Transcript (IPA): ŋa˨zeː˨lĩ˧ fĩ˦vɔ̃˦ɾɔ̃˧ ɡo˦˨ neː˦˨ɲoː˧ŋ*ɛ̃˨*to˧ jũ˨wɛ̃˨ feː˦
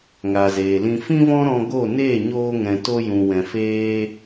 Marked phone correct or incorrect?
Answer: correct